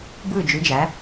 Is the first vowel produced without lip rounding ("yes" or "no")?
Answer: yes